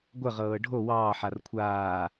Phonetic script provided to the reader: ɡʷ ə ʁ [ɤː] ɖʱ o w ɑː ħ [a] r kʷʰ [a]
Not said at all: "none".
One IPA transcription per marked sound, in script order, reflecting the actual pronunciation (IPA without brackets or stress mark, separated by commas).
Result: ɤː, a, aː